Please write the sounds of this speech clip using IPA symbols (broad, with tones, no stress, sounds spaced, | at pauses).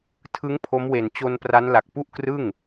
tʰ ɯ˦˥ ŋ pʰ o˦˥ m w e˨˩ n t͡ɕ o˧ n p r a˦˥ n l a˨˩ k̚ p u˥˩ ʔ k r ɯ˥˩ ŋ